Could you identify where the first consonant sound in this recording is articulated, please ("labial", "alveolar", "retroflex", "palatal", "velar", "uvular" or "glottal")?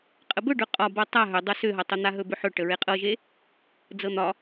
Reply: uvular